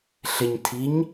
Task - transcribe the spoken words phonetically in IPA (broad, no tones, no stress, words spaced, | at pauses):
ɬɪɲtʰiɲ